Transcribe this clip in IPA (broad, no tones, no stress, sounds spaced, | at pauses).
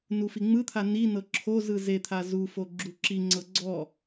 n u f i ŋ͡m ɯ t̪ʰ a n i n ɤ ǁʰ o z ɯ z e t̪ʰ a z u f o ɡ͡ǁ u ǁ i ŋ͡ǀ ɤ ɡ͡ǀ ɔ